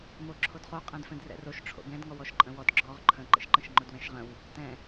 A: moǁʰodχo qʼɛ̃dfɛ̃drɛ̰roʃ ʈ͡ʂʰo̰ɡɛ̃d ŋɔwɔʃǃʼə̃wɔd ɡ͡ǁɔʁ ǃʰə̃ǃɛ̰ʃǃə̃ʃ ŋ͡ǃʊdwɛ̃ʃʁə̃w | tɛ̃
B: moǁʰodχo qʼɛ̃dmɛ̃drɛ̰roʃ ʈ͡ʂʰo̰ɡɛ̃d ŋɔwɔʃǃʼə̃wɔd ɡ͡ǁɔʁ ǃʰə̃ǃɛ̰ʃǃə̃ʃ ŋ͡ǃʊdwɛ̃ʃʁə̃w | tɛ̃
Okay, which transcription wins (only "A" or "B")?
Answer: A